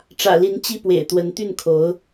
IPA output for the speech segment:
ʈ͡ʂ ä̰˨˩ l i˧˥ n t͡ɕ i˥˩ p w ḛ˨˩ ɪ̯ t̪ w ə˧˥ n t̪ y˥˩ n kʰ o˧˥ ʊ̯

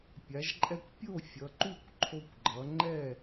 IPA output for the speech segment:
pʲ a˨˦ ʒ ǃʼ ɛ˦ kʷ pʲ o˥˨ fʲ ʌ˨˦ ǃ u˥˨ kʷ ǃʰ o˦ kʷ ɡ͡ǃ ʌ˨˦ ŋ͡ǃ ɛ˥˨

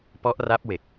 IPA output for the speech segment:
p ɔ˦˥ ʔ r a˦˥ p̚ w e˨˩ k̚

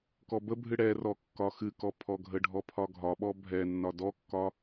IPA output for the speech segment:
k ɔ b ə bʱ ɨ ɽ ɛ r ɔ kː ɒ x ɨ k ɔ pʰ ɔ ɡʱ ə ɖʱ ɔ pʰ ɒ ɡʱ ɒ ɓ ɔ bʱ ɛ nː ɒ d ɔ kː ɒ

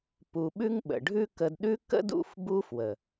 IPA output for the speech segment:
p u˧ ɓ ʉ˦ ŋ ɓ ə̰˨ ɖʱ ʉ˦ k ə˧ d ɗ ʉ˦ k ə̰˦ d ṵ˦˨ f b u˦ f w ə˨

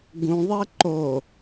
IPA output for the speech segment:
ɡ ũ ðˤ ɛ ǃ o

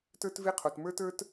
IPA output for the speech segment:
t ə˞˥ t v e˥ qʰ o˩ t m ə˞˥ t ə˞˥ t

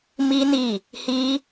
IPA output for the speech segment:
m i˦ n i˦˨ | h i˦

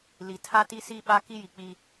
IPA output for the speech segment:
l i˨ tʰ a˦ t iː˦ s iː˦ ɓ a˦ k i˦ j i˨ k͡p i˦

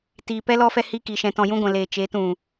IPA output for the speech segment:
t iː˨ p ɛ˦ l ɔ˦ f ɛ˦ h iː˧ k i˨ ʃ ɛ̃˨ t ɔ̃˨ j ũ˧ ɡʷ ɛ̃˨ l eː˨ t͡ʃ e˨˦ t ũ˨

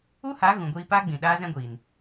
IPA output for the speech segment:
u˦ h a˨˦ ɣ ũ˨ ɡʷ iː˧ p aː˦ ɡ͡b ĩ˨ ɗ aː˦ z ɛ̃˦ ɡʷ iː˨ n

